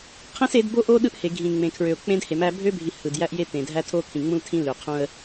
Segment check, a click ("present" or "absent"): absent